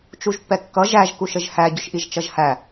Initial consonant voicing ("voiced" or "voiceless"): voiceless